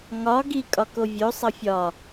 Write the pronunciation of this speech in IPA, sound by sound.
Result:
ŋɒ ɡikʼɒ kovʲosˤʌ fʲɒ

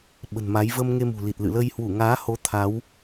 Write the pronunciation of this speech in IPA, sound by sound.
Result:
ɓə̤˨˩nma˨˦j və˧m ŋe˧mṳ˨˩ li˨˩t̚lɨ̰˧˨lə˧j hwu˧˩ŋaː˨˦ho˨˦ t̪ʰa˨˦w

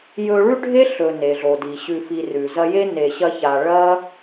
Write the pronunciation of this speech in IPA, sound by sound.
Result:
jɵ˦ ɭʉ˥ɖʱe˥ ɬɵ˨ ne˩ɮo˩di˩ ɕʉ˨fi˨rʉ˩zɐ˦ je˥ne˨ɕɐ˦ça˨ ɭɐ˥

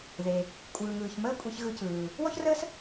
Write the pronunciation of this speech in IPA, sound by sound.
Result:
ðe˩ | kʷʼɯː˩ŋɯː˩çməː˥ kʷʼe˧çɣɯ˧cɯː˩ | wɔ˥çrəː˥s

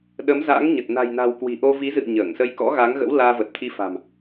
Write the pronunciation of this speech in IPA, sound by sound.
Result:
ɗə˨˦mza̰ː˧˥ŋɲə˨˩t̚ na̤˨˩jna̤˨˩w kwi̤˨˩ʔo˧vi˨˦zɨ̰˧˨ə̯ ɲəː˧˩ŋsə˧j kɔ̰˧˥ɣa˨˦ŋɣə̰˧˥w laː˧və˨˩t̚t̪ʰi˧fa̤˨˩m

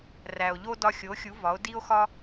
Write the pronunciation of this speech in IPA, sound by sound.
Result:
ræ˩o̯ʎo˥ dɒ˧xʲo˩˥xʲu˩˥ vɒ˩˥o̯di˥o̯xɒ˥

